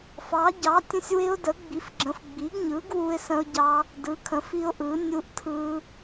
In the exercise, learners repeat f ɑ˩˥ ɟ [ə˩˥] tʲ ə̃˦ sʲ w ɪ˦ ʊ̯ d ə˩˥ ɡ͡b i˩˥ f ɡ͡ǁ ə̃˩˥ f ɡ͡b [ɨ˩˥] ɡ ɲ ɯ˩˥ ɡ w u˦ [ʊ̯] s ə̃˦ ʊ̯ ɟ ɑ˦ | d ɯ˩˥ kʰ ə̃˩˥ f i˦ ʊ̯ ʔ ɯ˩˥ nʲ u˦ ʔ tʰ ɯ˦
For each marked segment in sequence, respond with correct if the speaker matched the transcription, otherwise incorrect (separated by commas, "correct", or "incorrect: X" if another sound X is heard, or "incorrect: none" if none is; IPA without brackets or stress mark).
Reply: incorrect: ɑ˩˥, incorrect: i˩˥, incorrect: ɪ̯